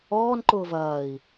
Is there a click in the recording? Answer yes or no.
yes